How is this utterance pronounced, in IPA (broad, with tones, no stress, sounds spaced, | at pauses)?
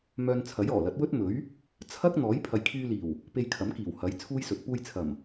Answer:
m œː˧ n t͡sʰ ɐ˨˥ j ɔː˨˩ l ɐ˨˥ t̚ w ɵ˥ t̚ m ɵ˨˥ ɥ | t͡sʰ ɐ˥ k̚ n̪ ɔː˨˥ j pʰ ɐ˨ j kʰ yː˧ l iː˨˩ w | p e˧ j kʰ ɐ˨˥ m k iː˨˩ w h ɐ˨˥ j t͡sʰ uː˥ j s ɵ˨˥ t̚ p uː˧ j t͡sʰ ɐ˨˩ m